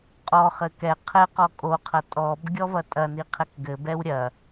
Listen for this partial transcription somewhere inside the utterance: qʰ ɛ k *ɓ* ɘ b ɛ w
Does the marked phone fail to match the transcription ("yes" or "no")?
yes